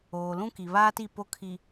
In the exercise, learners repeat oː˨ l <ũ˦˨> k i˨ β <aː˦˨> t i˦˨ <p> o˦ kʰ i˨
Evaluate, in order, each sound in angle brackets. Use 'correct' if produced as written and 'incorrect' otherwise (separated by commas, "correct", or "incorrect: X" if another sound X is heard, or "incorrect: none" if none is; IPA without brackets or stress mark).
incorrect: ũ˦, incorrect: aː˦, correct